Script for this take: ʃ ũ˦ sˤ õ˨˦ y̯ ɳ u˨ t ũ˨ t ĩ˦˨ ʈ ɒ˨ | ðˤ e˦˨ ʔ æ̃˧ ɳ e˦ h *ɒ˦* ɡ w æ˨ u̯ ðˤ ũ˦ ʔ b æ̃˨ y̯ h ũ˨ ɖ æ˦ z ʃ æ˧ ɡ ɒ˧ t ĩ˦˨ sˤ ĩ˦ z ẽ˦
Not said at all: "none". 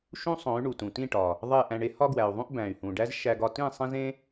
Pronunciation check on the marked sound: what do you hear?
ɒ˦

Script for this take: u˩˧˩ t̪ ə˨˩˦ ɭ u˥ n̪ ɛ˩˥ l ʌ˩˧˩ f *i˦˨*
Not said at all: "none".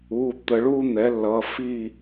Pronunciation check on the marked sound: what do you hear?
i˦˨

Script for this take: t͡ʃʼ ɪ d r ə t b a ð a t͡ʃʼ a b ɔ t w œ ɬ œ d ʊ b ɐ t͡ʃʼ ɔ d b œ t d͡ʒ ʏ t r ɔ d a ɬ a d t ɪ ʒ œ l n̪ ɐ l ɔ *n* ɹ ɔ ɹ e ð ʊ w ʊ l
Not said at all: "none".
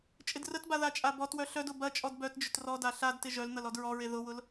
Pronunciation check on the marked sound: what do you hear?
d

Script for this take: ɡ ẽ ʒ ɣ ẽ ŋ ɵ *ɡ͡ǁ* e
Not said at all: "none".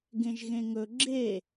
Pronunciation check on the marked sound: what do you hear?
ɡ͡ǁ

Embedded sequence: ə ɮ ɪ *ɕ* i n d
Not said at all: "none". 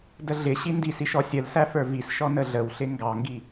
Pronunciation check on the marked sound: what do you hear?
ɕ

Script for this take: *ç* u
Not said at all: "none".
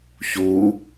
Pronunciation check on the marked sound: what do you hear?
ç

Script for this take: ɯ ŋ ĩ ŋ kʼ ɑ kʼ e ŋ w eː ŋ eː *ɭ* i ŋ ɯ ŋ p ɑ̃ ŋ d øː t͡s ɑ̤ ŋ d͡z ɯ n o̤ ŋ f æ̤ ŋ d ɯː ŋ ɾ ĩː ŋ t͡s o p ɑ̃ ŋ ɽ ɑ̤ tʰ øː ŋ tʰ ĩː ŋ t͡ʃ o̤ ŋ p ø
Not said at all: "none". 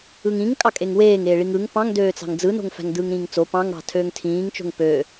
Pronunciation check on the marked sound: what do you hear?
ɭ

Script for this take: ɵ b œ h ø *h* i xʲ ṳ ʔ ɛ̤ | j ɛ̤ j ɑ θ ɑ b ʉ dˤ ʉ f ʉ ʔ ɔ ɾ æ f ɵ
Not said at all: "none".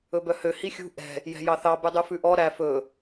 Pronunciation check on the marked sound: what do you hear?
h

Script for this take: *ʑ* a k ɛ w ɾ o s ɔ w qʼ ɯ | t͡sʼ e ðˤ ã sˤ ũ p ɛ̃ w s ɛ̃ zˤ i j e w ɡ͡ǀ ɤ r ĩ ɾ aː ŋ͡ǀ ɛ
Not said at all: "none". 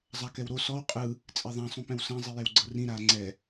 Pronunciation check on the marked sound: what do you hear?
zˤ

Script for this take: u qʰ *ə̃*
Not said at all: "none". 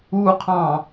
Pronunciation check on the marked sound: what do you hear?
ɑ̃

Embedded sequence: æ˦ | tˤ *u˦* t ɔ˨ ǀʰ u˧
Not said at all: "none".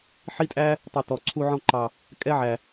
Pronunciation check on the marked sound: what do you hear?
u˨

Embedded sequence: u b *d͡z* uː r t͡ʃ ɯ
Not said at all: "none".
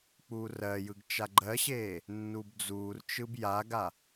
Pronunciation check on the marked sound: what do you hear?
d͡z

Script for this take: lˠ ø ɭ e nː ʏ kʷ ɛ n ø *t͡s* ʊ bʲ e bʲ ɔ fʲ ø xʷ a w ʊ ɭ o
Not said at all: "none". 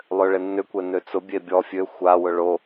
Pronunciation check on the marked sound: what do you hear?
t͡s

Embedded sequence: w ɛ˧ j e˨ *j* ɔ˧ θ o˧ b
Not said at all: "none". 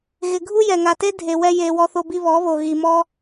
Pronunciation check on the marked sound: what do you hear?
w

